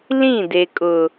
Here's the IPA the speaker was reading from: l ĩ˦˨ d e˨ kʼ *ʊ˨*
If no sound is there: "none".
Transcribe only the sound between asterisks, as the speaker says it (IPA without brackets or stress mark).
ʊ˨